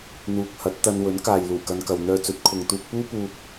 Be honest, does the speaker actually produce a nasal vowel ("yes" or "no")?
no